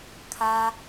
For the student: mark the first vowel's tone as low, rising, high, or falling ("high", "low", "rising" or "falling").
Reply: high